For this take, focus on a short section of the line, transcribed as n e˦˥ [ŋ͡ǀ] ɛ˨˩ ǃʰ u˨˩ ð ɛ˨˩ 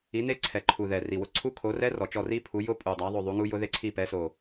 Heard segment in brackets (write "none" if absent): ǀʰ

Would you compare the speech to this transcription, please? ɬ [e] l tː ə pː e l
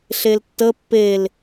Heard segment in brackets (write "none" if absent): e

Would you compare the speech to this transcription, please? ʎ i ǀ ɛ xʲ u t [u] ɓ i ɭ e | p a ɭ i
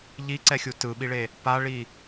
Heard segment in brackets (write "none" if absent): ɯ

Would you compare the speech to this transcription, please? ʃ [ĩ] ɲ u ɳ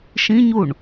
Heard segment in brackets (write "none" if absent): ĩ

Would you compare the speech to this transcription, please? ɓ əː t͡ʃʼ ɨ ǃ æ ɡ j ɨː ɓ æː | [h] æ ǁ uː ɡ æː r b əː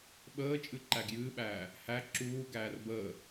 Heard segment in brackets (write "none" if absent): h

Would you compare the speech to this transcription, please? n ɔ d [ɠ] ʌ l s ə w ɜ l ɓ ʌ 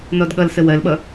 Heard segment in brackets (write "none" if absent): ɠ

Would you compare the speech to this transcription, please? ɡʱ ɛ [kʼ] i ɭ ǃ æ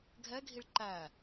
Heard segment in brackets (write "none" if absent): ɡʱ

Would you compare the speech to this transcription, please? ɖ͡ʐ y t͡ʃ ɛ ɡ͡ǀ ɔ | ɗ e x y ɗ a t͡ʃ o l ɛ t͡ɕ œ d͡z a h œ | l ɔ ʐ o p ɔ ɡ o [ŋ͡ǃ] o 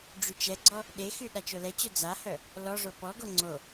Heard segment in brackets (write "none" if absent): ŋ͡ǀ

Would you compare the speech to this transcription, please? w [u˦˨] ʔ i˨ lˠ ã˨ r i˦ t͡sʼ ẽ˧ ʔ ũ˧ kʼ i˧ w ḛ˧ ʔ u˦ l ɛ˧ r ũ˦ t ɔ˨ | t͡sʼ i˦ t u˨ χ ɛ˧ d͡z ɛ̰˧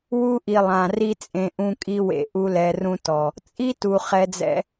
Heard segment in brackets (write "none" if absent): u˦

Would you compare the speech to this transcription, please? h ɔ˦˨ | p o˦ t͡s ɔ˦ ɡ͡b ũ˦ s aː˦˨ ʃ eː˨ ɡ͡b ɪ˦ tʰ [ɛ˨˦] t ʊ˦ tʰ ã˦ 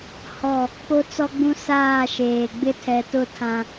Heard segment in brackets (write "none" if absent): ɛ˨˦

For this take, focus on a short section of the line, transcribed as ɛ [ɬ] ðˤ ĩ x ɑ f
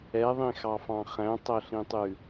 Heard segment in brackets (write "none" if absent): none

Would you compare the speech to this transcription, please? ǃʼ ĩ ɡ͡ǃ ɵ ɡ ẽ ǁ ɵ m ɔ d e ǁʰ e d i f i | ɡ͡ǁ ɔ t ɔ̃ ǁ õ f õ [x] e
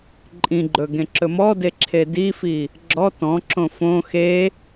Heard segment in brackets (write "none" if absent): x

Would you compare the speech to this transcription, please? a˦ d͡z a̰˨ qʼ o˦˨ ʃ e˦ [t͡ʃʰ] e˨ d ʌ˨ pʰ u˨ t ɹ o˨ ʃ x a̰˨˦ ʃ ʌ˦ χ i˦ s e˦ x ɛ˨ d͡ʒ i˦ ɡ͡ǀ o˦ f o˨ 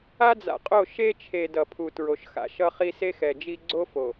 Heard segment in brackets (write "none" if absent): t͡ʃʰ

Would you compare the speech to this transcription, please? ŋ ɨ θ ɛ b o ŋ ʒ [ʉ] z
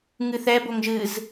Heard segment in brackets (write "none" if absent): ɨ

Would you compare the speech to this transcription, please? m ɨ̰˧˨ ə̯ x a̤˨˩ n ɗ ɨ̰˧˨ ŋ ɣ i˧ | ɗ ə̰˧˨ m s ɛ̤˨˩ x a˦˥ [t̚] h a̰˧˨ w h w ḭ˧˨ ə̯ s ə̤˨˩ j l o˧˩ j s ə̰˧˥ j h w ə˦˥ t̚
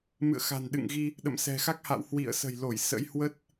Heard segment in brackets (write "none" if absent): k̚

